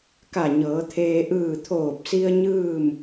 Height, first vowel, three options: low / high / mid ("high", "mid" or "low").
low